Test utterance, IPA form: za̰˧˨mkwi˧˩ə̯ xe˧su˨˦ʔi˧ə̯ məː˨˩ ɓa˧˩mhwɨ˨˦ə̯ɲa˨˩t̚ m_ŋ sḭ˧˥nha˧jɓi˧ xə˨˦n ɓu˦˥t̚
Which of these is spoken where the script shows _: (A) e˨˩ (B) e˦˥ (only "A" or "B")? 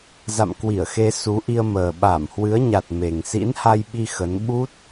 A